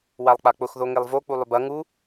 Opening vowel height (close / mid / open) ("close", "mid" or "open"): open